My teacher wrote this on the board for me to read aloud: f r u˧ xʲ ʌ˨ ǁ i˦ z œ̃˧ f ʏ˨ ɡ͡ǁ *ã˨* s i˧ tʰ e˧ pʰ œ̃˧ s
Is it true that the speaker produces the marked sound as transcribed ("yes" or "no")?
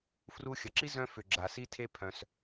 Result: no